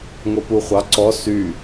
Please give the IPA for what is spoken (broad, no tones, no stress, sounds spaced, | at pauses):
ŋ o p u χʷ ɑ ǀ ɔ s y